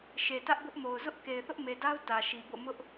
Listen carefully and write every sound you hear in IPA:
ʃe˨tä˦ʔbʊ˦ʔmo˨ʊ̯ zʊ˦ʔ ke˨ɪ̯θʊ˦ʔme˨da˦ʊ̯ tä˨ʃi˨bo̰˦˨ mʊ˦ʔ

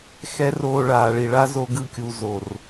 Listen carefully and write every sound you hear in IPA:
xɛ˦roː˧ ɭaː˨ɭi˨ɭa˦ zo˦ɡɯ˦˨kʲu˧ zo˨r

